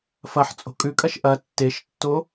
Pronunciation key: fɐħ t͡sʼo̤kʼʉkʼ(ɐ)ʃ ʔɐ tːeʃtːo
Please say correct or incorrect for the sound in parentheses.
correct